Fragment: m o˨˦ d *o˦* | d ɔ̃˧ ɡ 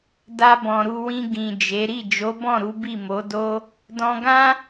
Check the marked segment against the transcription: correct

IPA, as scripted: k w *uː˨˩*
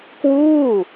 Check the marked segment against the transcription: incorrect: uː˥˩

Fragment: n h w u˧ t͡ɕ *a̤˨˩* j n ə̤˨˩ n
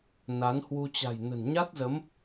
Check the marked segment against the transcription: correct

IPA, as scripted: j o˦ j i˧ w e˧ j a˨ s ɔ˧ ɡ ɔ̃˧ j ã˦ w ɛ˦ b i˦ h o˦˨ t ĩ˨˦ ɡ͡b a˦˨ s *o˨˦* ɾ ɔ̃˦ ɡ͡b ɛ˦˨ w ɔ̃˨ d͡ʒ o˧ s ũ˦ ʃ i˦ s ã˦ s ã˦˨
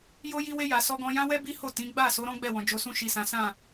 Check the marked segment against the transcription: correct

